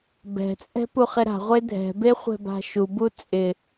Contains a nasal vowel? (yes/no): no